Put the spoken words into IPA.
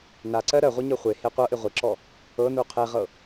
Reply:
n a ǀ ɜ ɾ ɜ ʁʷ ɤ ɲ ɤ χʷ e h e qʷ ɤ ʔ ɪ ʁʷ ɪ ǁ ɔ | ɤ n u qʰ e ʁ ɤ

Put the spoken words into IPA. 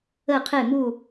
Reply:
ə˧˩ qʰ e˧˩ m u˧˩

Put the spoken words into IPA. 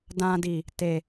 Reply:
d ã˧ d i˨ | t e˨

